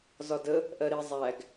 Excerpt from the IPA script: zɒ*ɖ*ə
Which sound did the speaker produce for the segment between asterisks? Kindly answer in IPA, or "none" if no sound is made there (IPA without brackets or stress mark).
d